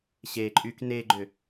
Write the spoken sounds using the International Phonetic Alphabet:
ɕeǃʼyk neɡ͡ǃʏ

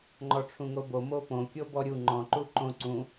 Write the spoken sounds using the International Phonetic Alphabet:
ŋ͡ǃɔʈ͡ʂʰũŋobo mopõ kʲobɔɾʲu ŋ͡ǃɔ̃ ǃuǃõ ǀũ

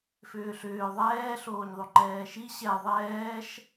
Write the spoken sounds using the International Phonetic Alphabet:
fʏːɬʏː ðˤɛː ɬoːɲðˤoŋ͡ǃɛːʃi ɕɛ ðˤɛːʃ

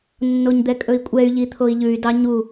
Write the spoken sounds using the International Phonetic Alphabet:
nːoɲd̪ɛkʼɵi̯kʷʼɛy̯ ʎit̪ʰoi̯ʎʉy̯ dɑɲu

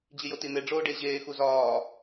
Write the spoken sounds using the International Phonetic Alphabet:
d͡ʑijotin̪e ɖ͡ʐoːɖeʑeː xuzɒː

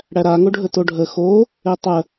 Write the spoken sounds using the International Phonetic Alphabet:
ɽæɾa ŋoɖʱətoɖʱə xo | etˤə

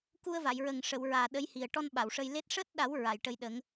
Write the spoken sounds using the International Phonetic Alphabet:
ku˧ə̯va˨˩˨jɹə˨˩ŋʂə˨˩˨w ɹaː˨˩ ɗə˧˥jhi˨˩ə̯ ʈɔ˧n ɓa˨˩˨wʂə˧j le˦˥t̚ ʂəː˦˥t̚ɗa˨˩˦w ɹa˨˩˨jʈə˧jɗə˨˩˦ŋ

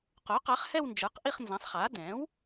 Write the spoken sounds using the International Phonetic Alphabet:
qo˩˥ qa˩˥χhɛ˥˧w nd͡ʒə˞˩˥qʔi˥˧χnzã˩˥sˤχa˩˥ dɛ̃˩˥w

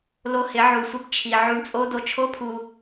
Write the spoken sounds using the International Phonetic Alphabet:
lo˧ hɪ˨˦ʕu˨sʷɪ˦b t͡ʃʰi˨ ʕu˧ɳt͡sʼo˦ do˧t͡ʃʰo˦pʰu˧

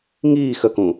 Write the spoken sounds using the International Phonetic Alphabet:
ŋiː xəkũ

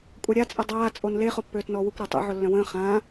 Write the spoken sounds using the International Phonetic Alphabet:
kʷʼaɾʲa t͡sʼədˤaː t͡sʼonle χopːøːtnɔːwukʷ ɾatˤḛ ʕolːœ̃wə̃ː χãː

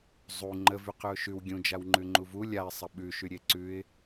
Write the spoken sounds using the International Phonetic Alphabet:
zˤu ŋ͡ǃəvyqʉʊ̯ ʃʉw ɡʲũd͡ʒawŋ͡ǃʉŋ͡ǃu vu lʲaɪ̯sˤə ɓʉʃyɾʲe ǀʉɪ̯

